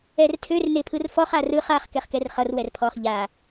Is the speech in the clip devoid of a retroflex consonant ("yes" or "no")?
yes